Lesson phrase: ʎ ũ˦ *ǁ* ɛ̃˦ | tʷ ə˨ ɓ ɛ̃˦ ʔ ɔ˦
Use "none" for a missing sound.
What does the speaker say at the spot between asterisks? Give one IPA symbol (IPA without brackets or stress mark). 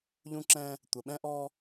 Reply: ǁ